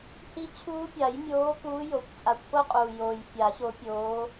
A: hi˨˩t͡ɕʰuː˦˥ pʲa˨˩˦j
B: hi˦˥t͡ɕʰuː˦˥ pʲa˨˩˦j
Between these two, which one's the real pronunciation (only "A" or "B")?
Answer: B